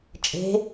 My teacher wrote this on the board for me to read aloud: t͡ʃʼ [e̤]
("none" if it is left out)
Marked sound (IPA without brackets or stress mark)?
e̤